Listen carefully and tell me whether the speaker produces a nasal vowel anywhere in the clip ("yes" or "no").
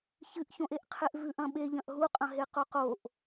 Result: yes